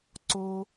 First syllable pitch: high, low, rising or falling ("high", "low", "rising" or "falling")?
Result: high